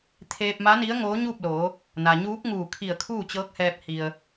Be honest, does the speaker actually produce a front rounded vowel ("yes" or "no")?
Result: no